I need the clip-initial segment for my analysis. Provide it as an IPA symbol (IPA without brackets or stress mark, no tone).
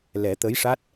l